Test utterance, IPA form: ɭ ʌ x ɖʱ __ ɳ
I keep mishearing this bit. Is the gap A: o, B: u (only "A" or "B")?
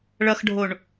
A